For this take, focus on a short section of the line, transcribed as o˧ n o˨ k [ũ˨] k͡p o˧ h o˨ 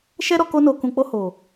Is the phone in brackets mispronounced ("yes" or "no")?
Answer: no